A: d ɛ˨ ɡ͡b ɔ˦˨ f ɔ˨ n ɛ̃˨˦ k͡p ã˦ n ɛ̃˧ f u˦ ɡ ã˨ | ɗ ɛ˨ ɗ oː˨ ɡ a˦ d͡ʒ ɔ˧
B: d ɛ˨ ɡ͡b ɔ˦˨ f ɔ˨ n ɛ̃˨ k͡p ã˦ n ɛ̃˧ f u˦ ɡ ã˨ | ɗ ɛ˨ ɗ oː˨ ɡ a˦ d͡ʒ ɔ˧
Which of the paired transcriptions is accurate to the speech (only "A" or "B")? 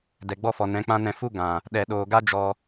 A